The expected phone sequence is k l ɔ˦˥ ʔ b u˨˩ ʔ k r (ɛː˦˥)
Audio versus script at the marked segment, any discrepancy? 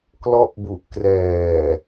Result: yes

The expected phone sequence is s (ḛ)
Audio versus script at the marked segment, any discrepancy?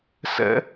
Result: yes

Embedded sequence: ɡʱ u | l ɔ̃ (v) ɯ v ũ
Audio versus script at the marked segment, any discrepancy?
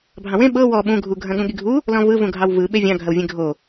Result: no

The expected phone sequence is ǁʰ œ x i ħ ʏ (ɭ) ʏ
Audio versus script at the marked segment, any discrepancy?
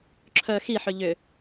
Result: yes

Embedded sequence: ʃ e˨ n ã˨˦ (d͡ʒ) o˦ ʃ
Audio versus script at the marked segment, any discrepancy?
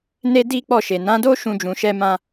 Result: yes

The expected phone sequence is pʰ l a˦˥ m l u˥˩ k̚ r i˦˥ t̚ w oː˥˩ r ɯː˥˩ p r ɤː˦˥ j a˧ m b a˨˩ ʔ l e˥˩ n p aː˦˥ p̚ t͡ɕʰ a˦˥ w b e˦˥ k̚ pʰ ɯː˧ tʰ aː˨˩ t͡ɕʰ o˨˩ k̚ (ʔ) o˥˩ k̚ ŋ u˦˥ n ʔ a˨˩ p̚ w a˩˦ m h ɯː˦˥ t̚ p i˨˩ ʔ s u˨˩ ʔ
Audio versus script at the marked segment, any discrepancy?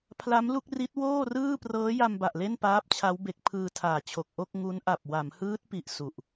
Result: no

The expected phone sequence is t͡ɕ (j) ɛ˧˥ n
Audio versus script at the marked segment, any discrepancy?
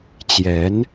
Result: no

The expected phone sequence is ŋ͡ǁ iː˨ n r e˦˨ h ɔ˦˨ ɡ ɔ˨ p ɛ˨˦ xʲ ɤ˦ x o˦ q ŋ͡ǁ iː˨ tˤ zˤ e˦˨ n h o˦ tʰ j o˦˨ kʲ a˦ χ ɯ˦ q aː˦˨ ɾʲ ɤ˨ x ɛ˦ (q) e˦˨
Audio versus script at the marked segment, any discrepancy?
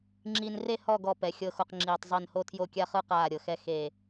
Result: yes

